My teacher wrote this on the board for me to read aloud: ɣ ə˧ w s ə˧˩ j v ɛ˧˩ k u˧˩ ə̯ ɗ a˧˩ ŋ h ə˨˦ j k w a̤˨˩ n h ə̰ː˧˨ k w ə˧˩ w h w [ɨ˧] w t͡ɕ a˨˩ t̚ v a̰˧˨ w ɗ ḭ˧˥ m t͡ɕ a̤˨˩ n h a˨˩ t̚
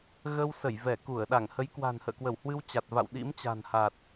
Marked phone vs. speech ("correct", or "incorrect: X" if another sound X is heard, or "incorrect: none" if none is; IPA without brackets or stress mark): correct